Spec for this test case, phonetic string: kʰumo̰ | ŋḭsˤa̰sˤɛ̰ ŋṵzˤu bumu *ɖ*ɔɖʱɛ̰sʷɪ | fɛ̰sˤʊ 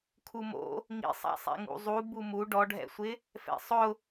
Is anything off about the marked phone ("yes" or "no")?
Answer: no